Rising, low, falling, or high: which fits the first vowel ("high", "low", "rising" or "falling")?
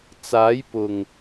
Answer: rising